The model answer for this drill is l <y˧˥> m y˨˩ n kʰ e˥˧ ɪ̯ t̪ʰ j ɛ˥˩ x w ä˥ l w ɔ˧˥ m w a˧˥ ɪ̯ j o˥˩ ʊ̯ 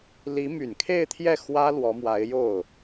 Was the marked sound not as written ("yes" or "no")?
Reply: yes